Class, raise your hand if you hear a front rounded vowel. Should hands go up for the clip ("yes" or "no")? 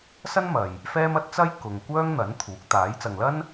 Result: yes